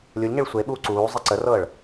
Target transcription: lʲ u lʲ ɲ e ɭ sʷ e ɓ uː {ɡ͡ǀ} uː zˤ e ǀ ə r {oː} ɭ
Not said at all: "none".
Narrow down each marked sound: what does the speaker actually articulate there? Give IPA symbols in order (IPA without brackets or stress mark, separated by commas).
ǀ, ɤː